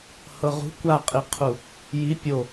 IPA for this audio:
h ɤ ʁ ṳ kʷ a qʼ i qʰ u | j i pʲ o

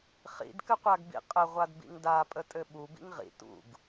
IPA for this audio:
χ ḭ d k ɘ qʷ a ɡ b ḭ qʼ ə ʁʷ a d b ḭ ŋ d a pʼ ə tʼ ɘ ɓ u b ḭ ŋ ʁ ḭ t ṵ ɡ

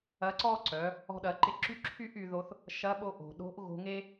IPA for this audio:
ɐ˧˥ ǀ ɔ˥ ǀ œ˩˧ | ɔ̤˧ ɗ ɐ˩˧ ǃ ɪ˧ ǁ y˥ ǁʰ y˥ ʔ y˩˧ ð o˧ θ | ʃ ɐ˧˥ ɓ o˧ ʔ o̤˩ ɗ o̤˧˥ ʔ ɣ o̤˧ ŋ e˥

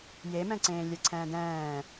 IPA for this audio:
j e m ɛ̃ ǀ ẽː lʲ ɛ ǀʰ ɛ̃ː d ɛ̃ː

